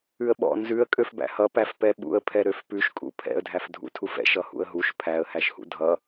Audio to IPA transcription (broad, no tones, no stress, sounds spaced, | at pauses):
ʉ ə̯ ɓ ɔ̰ n z ʉ ə̯ kʼ ø f b æ̰ h ʌ p æ f p ɛ ɓ ṵ ə̯ pʰ ɛ ɾ ø f p ʉ ʃ kʼ ṵ pʰ ɛ̰ ə̯ dʱ æ f dʱ ṵ tʰ u f ɛ̰ ʃ ʌ h ṵ ə̯ ɦ u ʃ pʰ æ ə̯ h æ ʃ h ṵ dʱ ʌ